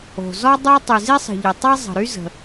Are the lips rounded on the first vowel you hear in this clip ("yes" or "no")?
yes